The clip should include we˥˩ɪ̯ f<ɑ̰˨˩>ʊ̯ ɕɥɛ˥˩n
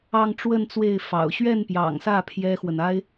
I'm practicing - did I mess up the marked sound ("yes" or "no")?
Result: no